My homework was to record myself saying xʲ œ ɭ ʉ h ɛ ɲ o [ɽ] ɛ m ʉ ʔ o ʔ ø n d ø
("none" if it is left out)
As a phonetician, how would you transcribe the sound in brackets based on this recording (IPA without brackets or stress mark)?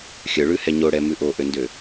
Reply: ɽ